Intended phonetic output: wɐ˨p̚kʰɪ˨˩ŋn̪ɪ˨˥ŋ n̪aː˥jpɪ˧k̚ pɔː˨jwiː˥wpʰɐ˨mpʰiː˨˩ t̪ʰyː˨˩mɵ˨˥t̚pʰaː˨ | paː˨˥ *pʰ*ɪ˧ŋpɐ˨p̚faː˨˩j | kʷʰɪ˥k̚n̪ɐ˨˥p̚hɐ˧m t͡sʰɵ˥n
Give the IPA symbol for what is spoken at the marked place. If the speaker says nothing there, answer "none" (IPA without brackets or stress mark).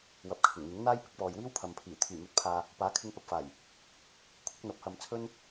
kʰ